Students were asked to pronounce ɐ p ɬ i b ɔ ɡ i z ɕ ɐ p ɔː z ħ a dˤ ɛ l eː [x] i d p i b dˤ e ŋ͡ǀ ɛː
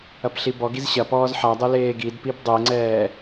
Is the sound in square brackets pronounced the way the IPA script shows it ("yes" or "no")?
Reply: no